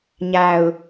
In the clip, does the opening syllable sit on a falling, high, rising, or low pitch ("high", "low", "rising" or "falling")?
low